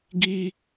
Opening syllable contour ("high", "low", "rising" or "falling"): high